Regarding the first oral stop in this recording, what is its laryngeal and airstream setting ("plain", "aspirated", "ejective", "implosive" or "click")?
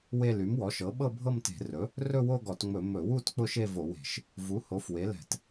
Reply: implosive